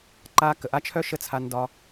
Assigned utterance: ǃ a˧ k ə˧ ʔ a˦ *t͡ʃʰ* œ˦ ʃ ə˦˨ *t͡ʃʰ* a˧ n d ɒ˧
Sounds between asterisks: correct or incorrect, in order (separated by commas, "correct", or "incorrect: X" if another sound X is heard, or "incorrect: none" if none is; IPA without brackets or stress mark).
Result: correct, incorrect: t͡sʰ